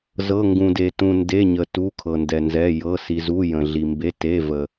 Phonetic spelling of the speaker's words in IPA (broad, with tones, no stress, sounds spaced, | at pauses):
z ɤ˩˧˩ ŋ ɡ ũ˩ d e˩ t ũ˩ n d e˩˧˩ ɲ ə˩ t u˩˧˩ kʰ ɤ˩ n d ɛ˩ n z ɛ˩˧˩ j ɤ˩˧˩ s i˩ z u˩˧˩ j ə̃˩ ɮ i˩ m b e˩˧˩ t e˩˧˩ v ə˩